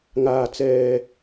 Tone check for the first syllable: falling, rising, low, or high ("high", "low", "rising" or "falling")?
low